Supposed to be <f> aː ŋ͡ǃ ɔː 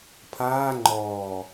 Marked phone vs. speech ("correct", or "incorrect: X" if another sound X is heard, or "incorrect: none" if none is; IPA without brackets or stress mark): incorrect: pʰ